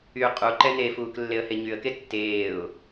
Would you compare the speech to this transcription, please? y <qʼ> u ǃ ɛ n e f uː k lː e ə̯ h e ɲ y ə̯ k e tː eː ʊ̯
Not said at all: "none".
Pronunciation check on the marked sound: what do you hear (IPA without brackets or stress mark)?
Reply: qʼ